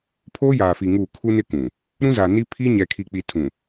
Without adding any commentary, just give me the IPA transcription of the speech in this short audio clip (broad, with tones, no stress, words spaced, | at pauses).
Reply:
pʰoː˦jaː˨fi˨ ŋuː˦˨ kʰu˦nɪ˦ kũ˨ | ɾũ˦za˨ni˦ pʰi˦ ɲɛ˨kʰi˨k͡pi˨ tʰũ˨